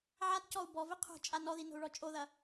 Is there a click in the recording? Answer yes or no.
no